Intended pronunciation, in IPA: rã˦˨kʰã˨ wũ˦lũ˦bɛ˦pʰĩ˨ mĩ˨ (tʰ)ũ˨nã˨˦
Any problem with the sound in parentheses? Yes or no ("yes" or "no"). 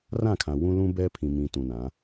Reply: yes